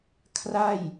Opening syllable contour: falling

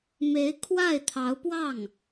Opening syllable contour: rising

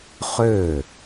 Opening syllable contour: falling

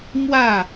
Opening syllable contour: falling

